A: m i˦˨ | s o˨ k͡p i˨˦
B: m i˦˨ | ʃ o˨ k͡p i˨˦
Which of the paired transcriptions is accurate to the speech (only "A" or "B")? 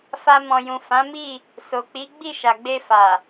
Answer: A